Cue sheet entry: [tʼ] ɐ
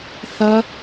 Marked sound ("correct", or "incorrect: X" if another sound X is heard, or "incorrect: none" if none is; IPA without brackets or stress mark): incorrect: θ